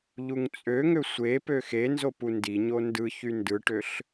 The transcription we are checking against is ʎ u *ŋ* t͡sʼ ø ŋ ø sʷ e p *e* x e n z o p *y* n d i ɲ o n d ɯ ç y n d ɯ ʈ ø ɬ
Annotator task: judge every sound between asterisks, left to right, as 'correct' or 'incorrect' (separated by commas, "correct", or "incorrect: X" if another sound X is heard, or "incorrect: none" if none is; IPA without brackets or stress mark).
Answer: correct, incorrect: ø, incorrect: u